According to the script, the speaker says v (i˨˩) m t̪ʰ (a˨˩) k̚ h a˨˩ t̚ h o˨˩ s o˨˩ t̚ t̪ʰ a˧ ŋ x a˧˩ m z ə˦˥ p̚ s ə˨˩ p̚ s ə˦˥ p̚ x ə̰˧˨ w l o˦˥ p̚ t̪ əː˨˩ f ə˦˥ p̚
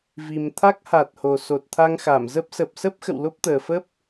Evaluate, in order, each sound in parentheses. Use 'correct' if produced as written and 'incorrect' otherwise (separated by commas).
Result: correct, incorrect